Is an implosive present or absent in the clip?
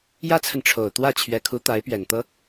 absent